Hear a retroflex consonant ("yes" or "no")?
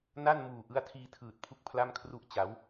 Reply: no